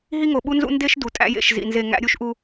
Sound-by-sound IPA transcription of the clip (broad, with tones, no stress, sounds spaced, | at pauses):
ɦ i˦ ŋ o˨ ɓ u˦ n z ṵ˦ n d e˦ ʃ d u˨ tʼ æ̰˦ j ḛ˦˨ ʃ z ḭ˨ n z e˦˨ ŋ æ̰˦ ɾʲ u˦ ʃ ʔ u˦